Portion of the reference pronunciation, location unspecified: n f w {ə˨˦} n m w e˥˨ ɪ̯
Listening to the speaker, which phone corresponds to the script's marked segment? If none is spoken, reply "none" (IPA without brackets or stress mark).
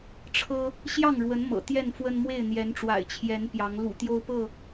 ə˦